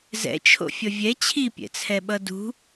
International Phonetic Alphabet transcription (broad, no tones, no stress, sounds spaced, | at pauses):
z ɛ̰ t͡ʃʰ o̰ fʲ ʌ vʲ ɛ t͡ɕʰ i pʲ ɛ̰ t͡sʰ ɛ ɓ ʌ d ṳ